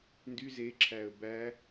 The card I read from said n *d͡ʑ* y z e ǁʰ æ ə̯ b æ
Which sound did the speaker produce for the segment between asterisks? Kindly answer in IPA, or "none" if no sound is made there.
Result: d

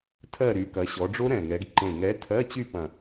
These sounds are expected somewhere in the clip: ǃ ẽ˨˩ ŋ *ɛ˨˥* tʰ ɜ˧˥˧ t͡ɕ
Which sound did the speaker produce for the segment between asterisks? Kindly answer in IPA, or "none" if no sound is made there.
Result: ɛ˨˥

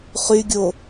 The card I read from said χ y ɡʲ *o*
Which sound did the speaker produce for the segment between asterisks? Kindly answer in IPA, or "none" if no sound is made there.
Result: o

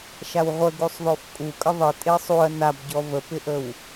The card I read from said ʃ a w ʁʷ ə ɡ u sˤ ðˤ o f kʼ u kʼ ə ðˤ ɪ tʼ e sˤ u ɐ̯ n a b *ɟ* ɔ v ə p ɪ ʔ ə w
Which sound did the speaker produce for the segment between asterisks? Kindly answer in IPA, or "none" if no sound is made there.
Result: ɟ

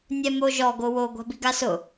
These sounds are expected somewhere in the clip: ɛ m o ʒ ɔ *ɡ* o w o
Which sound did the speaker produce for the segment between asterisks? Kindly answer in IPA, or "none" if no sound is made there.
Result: ɡ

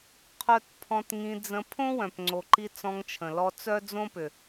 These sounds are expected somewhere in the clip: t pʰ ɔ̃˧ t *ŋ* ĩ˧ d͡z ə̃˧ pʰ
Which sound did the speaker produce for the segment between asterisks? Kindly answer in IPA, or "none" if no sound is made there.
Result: ŋ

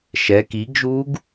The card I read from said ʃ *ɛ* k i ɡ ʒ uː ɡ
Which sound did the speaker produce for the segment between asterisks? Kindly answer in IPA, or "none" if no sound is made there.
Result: ɛ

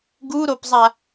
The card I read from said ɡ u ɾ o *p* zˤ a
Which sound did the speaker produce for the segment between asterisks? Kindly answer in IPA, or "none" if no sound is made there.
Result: p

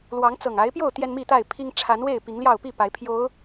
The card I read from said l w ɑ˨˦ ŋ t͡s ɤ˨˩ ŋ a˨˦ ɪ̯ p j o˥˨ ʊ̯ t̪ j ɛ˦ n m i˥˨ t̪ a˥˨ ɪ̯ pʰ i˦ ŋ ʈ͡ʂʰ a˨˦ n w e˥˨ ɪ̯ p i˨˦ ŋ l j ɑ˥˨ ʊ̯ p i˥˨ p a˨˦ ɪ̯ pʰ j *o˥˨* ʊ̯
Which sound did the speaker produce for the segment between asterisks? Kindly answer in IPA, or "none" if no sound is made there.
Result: o˨˦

